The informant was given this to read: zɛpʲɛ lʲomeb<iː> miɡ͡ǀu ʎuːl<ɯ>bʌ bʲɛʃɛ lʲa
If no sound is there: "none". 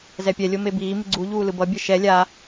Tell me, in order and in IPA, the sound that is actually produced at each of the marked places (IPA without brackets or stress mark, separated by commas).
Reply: iː, ɯ